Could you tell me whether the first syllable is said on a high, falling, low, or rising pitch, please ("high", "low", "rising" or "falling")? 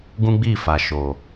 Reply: high